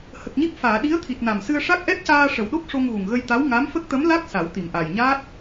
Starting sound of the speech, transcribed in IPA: h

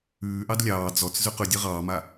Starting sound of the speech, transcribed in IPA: ʉː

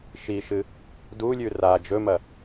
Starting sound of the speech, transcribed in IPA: ʃ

